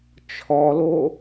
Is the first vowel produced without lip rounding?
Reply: no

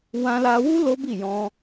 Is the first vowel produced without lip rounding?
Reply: yes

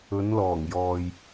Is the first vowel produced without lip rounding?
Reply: no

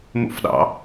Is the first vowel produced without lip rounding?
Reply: no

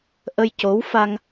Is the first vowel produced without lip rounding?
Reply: yes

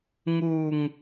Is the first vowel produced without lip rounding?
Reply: no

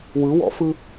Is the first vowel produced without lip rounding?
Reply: yes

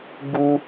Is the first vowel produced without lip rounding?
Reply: no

